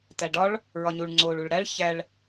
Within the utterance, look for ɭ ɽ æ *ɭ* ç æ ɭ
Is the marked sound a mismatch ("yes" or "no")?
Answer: no